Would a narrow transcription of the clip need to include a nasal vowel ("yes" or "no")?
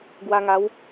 no